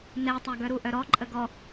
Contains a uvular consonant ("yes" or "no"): no